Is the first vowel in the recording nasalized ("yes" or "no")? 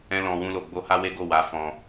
yes